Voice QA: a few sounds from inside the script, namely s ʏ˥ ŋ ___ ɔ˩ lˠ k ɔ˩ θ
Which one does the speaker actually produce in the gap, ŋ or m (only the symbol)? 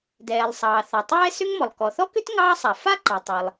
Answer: m